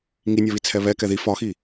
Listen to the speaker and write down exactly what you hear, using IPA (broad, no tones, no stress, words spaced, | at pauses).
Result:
ŋinʲɒβit͡sʰɛ βɛ kɛði fɒxi